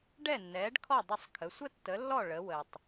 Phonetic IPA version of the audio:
ɖ ɛ˥˩ nː ɛː˩˥ ɖ kʰ ɔ˥˩ dˤ ə˥˩ sˤ kʰ ə˩˥ sʷ ə˥ tː ə˩˥ lː ɔ˥˩ ɭ ə˩˥ w ə˩ tˤ

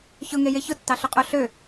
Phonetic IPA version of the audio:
ç ʊ ŋ e j e ç ʊ tː ɑ ɬ ʊ qʼ o ɬ ø

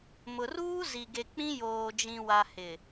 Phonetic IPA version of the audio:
m ʊ˨ r uː˦ z i˨ ɡ e˨ k͡p ĩ˦ j oː˨ d͡ʒ ĩ˨ w a˨ h ɪ˨

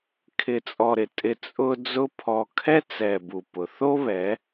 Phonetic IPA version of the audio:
kʰ ɪ˨ t͡sʼ ɔ˨ ɾ ɪ˨ tʼ ɪ˧ t͡sʼ ʊ˧ d͡z ʊ˧ pʰ ɔ˨ kʰ ɛ˦ t͡s ɛ˨ b u˨ p ʊ˨ θ o˦ β ɛ˨˦

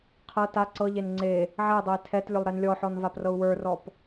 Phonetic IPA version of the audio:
qʰ ɤ t a ǀ ɤ ʎ e n ŋ͡ǀ e | ʕ ɛ dˤ ɤ i̯ tʰ ɛ t lʲ ʊ lˠ ɾ ɛ n lʲ ɔ ħ ɔ n v a p r ɤ u̯ w ə˞ r ɔ p

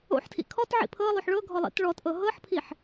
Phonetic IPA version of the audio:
o̰ ħ tʰ ḭ kʰ ɔ t ʕ ḭ pʰ ɤ lˠ o ħ ɭ ɤ ɡʱ ɔ lˠ ḭ t ɭ ɔ t ʔ ɤ ɦ ɤ ħ pʰ i ħ

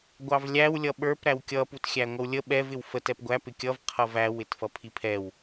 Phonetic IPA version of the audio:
ɡʷ ɑ v lʲ æ w lʲ ʌ ɓ ə˞ p ɾ æ w kʲ ʌ p u t xʲ æ ŋʷ ʌ w lʲ ə ɓ ɛ v ɪ w f ə t ɛ p ɡʷ æ p ɪ kʲ ʌ v qʰ ʌ v æ w ɪ t f ʌ pʰ i pʰ ɛ w

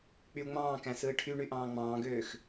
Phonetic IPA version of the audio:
k͡p y u̯ ŋ͡m ɑ̃ː k æ̃ s ɯː ʈʰ y ɳ y ʔ ɑ̃ː ŋ͡m ɑ̃ː ɡ øː x

